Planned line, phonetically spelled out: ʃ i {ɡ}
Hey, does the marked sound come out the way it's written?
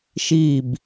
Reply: no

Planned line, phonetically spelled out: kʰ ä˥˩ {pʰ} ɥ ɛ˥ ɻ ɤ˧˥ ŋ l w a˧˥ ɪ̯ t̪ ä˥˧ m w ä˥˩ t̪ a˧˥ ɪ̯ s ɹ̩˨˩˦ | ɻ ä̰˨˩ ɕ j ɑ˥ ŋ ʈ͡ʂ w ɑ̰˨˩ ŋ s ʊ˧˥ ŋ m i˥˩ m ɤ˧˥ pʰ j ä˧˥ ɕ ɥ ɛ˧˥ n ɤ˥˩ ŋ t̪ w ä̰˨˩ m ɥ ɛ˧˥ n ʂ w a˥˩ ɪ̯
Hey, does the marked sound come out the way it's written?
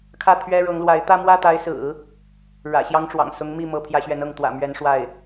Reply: no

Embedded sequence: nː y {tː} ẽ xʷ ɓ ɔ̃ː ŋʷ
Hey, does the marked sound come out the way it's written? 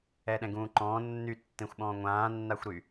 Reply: yes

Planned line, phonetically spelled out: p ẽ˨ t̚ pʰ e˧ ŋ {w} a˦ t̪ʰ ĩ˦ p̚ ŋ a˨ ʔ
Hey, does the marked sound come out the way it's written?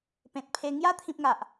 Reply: no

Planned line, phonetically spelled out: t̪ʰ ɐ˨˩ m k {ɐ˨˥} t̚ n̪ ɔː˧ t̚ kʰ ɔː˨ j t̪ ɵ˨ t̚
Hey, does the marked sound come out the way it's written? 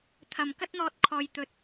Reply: no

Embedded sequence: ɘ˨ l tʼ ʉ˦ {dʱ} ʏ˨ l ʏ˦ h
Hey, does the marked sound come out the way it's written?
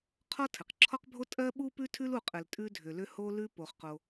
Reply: yes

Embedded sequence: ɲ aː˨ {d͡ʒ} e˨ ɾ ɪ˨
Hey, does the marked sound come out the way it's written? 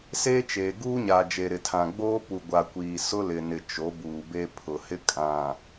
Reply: yes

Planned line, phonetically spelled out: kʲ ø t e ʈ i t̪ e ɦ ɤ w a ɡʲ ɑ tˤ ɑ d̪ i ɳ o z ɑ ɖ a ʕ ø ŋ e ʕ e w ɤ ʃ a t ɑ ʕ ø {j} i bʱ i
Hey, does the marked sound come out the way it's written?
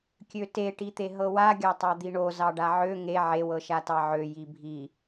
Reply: yes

